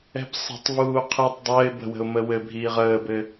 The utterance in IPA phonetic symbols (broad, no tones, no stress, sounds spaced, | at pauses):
ɛ̤ b sˤ ə̤ tˤ v uː qʰ i tˤ dˤ əː ɪ̯ b ə̤ w ə̤ ʊ̯ m ə w ɘ bʱ iː ʁ əː b ɘ